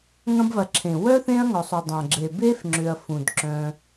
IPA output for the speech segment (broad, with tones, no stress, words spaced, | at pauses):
ŋɐ̃˦bvɐ˨ǁʰẽ˩ wœ˥θẽ˦ɐ̯ŋɔ˩sˤʏ˩ dˤɐ̃˩ɡ͡ǁe˩ be˥f ŋ͡ǁʏ˨ɐ̯fũ˩dǁœ̃˨